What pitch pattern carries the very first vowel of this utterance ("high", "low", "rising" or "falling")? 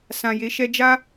low